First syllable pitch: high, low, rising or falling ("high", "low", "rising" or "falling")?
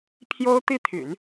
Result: high